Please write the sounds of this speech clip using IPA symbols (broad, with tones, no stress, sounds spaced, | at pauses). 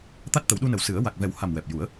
t̪ a˦˥ t̚ t̪ ə˨˩˦ w ɗ u˧ n ə˨˩ w s ɨ˨˩˦ ə̯ w a˨˩ k̚ v ɛ˨˩˦ w h a˨˩ m w ɛ˨˩ p̚ j u˨˩˦ ə̯